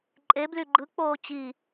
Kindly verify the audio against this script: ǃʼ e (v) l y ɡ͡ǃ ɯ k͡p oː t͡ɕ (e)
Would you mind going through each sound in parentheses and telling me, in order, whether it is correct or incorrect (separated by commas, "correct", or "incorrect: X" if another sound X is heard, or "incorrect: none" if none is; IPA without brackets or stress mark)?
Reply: incorrect: b, incorrect: i